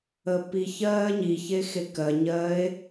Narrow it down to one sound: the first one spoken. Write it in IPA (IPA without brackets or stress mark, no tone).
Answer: əː